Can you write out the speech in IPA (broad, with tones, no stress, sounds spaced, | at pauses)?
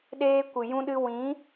ɗ eː˧ kʷ ɨ˨ j ũ˧ ɗ ɨ˧ w ĩ˨˦